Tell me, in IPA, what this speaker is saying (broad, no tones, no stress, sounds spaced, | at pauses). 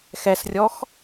x ɛ s rʲ ɔ x